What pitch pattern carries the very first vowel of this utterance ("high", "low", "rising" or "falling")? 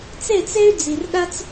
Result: falling